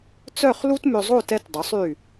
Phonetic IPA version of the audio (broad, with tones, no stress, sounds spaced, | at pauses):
t͡s œ˥˧ χ l u˥ t m ø˧ zˤ o˥˧ t ɛ˧ t dˤ œ˩˧ sˤ y˧˩